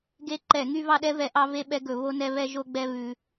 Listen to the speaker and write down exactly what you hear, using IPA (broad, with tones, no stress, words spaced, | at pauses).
ɡe˧ǃɛ˧˩˧ ŋy˧vɑ˧ɗɛ˧vɛ˧˩˧ ʔɑ˧ve˧ɓɛ˧ɡɵ˧˩˧ βo˧nɛ˧βɛ˧ ʒo˧ɡ͡bɛ˧ βʉ˧